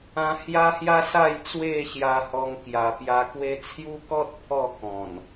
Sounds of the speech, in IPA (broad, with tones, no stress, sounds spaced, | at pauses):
ã˧ h j a˦ h j a˦ s a˥˧ j t͡s w e˥˧ ɕ j a˧ h ɔ˧ ŋ k j a˨˩ p j a˧ k w e˦ t͡sʰ j u˦ k ɔ˦ t̚ pʰ ɔ˥˧ k ɔ̃˨˩ n